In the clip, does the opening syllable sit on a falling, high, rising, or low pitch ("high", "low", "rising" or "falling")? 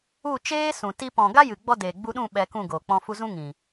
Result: falling